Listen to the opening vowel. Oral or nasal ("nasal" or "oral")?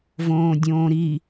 nasal